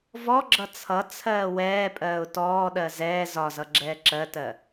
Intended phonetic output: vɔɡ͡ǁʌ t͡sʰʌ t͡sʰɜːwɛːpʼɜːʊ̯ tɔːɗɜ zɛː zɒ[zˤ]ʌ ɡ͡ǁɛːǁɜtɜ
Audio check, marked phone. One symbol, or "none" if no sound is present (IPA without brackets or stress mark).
z